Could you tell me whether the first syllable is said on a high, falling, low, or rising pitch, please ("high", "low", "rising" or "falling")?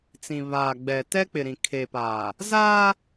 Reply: low